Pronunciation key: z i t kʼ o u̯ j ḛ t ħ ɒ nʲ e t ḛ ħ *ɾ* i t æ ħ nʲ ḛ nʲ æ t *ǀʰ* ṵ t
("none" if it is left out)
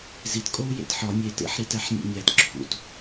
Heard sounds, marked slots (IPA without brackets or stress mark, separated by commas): ɾ, ǁʰ